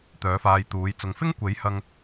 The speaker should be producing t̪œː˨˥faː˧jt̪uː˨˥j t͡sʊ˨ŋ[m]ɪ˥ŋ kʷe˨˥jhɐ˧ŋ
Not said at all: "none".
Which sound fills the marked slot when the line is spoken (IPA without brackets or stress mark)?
f